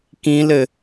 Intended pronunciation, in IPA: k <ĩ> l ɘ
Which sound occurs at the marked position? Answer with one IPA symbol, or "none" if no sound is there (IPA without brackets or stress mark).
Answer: ĩ